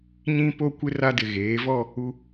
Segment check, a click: absent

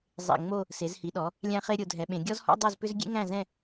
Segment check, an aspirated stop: absent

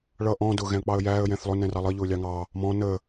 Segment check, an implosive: absent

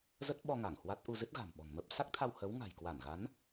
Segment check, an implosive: present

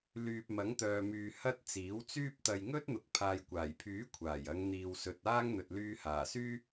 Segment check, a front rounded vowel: present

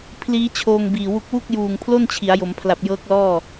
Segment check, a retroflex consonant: absent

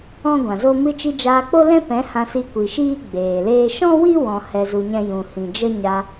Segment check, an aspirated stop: absent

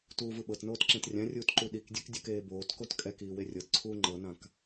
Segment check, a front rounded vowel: absent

